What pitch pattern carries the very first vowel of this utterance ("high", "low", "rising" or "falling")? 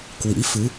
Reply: rising